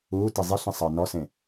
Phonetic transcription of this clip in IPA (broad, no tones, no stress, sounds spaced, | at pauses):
uː t i zˤ i ɬ ĩ sˤ əː n ɔ s ẽ